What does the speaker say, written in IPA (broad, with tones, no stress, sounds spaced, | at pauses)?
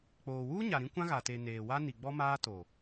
k͡p oː˨ w uː˦ ɲ a˨ ɾ ĩ˦ kʷ ã˦ ɣ a˨ t e˨ n eː˨ w a˦ n i˨ ɡ͡b ɔ˦ m aː˦ t o˨